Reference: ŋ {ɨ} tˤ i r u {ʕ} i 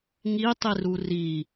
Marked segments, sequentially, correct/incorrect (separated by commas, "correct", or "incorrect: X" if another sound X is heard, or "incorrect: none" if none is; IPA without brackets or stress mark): incorrect: i, incorrect: r